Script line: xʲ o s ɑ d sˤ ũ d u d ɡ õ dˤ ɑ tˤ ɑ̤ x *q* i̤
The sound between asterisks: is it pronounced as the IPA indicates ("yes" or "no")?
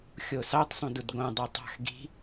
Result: no